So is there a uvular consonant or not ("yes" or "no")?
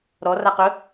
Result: yes